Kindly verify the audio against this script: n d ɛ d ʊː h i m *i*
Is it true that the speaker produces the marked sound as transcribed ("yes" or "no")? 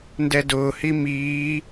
no